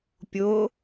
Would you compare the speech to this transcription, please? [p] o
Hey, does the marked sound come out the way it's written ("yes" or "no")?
no